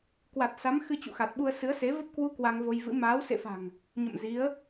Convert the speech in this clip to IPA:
kwa˨˩t̚sa˨˦m xɨ˧t͡ɕṵ˧˨xa˨˩t̚ɓu˧ə̯ sɨ˨˦ə̯se˨˦ və˦˥p̚kwu˧ kwa˧ŋvo˧j vɨ̰˧˥ maː˨˦wsḛ˧˨fa̤˨˩ŋ | ɲə̰˧˨mzi˨˦ə̯

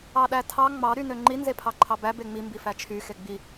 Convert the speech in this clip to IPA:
ɑɗætʰɑ ŋ͡mɑ ɾynøŋ͡ǃi nzepʰɑǃʰɑbæ beŋ͡mi mbifæt͡ʃʰy xeɡ͡bi

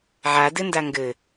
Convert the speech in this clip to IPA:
ʕadɘnda ŋɡɘ

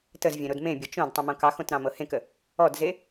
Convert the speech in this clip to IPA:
təz vʲẽɾodmẽbʲɤ t͡ʃõd tˤĩmõkɑxõt ɾɑ̃mɤhẽkə | ɔdze

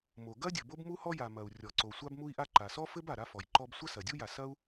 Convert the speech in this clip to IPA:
mo˩ɡɐ˥dʲɘ˩ bo˥bmu˥hɔ˥ja˩ mɐ˩u̯ rʲɔ˩ǀo˩ sʷa˥bmu˥i̯ʔa˥ ǃa˩sɔ˥fɘ˥b a˩ɾa˥fɔ˩jǃɔ˥b sʷɐ˥sɐ˩dʲu˥ja˩ sɐ˥u̯

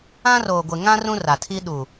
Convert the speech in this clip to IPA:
ã˦roː˨ɡʷɪ˨ ŋã˦ rũ˦ra˨tʰi˦ ɗuː˨

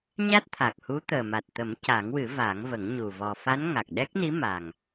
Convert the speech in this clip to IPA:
ɲa˦˥t̚t̪ʰa˨˩k̚hu˧˥ t̪əː˨˩ma˨˩t̚t̪ə˨˩˦m ca˨˩˦ŋwɨ˨˩˦ vaː˨˩˦ŋvə˨˩˦ŋ ɲu˨˩ vɔ˨˩fa˧˥n ŋa˨˩k̚ɗɛ˦˥k̚ni˧˥ ma˨˩ŋ

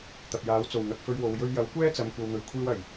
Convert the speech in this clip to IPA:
t̪ɐ˨p̚jaː˨˥w t͡so˨˩wŋɐ˨k̚ fɵ˧ɥwo˨w jɵ˧ɥjɐ˨˥wkʷɛː˥ t͡sɐ˨m kʷɐ˨wn̪ɵ˨˩ɥ kʷʰiː˧wɐ˨˩j

